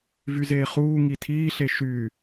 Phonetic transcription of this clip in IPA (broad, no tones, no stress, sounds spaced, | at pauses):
v y z eː χ uː ŋ i tʰ iː ɬ e ʃ y